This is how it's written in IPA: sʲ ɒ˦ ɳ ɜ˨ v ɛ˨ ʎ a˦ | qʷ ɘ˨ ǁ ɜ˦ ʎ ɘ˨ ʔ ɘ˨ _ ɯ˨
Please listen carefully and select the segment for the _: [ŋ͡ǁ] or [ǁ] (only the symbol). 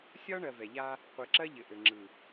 ŋ͡ǁ